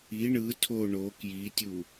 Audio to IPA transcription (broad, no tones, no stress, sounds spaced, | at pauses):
i ɳ ɯ tʰ o ɳ o k j i tʲ u